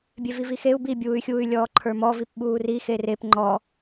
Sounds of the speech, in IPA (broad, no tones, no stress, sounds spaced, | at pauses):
bʲ e v i v i x e u̯ b i bʲ uː y̯ xʲ uː y̯ lʲ ɔː ǃʰ ə˞ m ɔ v i p ɓ uː r i x e r e p ŋ͡ǃ ɔ